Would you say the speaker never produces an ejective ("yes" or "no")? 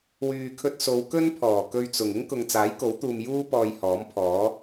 yes